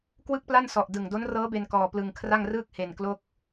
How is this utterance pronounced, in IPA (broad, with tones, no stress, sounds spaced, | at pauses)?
k w ɯ˥˩ k̚ p l a˥˩ n s ɔ˨˩ ʔ d ɯ˨˩ ŋ d o˦˥ n r ɤː˦˥ b e˧ n k ɔː˧ p l ɯ˧ ŋ kʰ r a˥˩ ŋ r ɯː˥˩ k̚ h e˧ n k l o˥˩ k̚